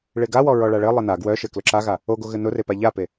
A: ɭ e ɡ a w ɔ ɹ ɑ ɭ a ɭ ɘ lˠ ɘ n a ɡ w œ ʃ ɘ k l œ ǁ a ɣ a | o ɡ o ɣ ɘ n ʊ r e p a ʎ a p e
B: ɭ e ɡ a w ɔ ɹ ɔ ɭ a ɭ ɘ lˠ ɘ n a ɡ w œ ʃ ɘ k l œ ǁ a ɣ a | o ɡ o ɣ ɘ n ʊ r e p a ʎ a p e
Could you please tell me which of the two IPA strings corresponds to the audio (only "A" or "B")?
B